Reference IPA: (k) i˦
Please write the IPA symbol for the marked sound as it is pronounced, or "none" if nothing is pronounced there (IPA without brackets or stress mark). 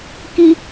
k